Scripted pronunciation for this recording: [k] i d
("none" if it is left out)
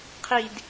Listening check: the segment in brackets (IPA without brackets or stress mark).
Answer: qʰ